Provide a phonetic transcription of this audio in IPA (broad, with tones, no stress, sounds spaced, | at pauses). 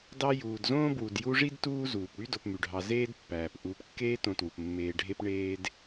d ɑ˦ j uː˨ d z õː˥ b w u˨ d j u˦ ʐ i˥ d t uː˦ z uː˩ p ɽ y˥ d o˨ p m y˩ ɖʱ ɑ˨ z eː˦ d pː æː˩ p ʔ uː˨ p kː eː˦ t õ˨ t w u˩ p mː eː˨ ɖʱ e˦ p ɳ eː˦ d